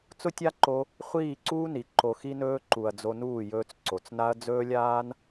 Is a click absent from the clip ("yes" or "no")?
no